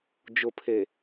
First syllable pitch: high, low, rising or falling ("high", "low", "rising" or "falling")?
low